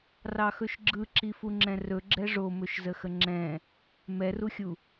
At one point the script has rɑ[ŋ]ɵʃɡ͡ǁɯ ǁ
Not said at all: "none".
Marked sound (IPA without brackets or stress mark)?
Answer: x